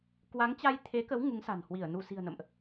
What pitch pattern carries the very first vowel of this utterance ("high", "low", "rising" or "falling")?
rising